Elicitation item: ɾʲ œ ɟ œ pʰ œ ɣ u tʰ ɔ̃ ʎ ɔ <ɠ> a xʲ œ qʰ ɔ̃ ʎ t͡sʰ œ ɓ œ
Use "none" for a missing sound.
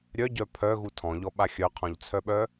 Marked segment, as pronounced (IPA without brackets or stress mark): ɓ